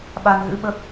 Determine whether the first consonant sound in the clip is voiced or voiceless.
voiced